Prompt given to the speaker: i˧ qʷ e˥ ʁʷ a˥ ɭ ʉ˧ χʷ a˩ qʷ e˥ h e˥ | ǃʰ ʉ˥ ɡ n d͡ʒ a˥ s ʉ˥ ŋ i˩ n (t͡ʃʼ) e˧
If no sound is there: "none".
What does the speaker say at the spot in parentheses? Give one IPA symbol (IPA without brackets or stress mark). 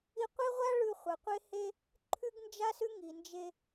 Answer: d͡ʒ